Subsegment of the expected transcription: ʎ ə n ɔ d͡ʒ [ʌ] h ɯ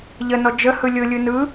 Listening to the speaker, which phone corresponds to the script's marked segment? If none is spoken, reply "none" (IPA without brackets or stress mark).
ə